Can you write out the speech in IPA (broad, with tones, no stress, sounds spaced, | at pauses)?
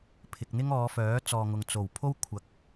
pʰ ɪ˨ k̚ n̪ ɪ˥ ŋ ɔː˨˧ f œː˨˥ t͡s ɔː˨ ŋ ʊ˨ ŋ t͡s o˨˩ w pʰ o˥ w kʷʰ ɐ˨˥ k̚